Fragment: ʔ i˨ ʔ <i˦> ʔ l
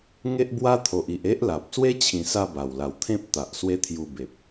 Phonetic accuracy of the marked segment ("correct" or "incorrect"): incorrect